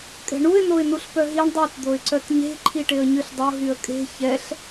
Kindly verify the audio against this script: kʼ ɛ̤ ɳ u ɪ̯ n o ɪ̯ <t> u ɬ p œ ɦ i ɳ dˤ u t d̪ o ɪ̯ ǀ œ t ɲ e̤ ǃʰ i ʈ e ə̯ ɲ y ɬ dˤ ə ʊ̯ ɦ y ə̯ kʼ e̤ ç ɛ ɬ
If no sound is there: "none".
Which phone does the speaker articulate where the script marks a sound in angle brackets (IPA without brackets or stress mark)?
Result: n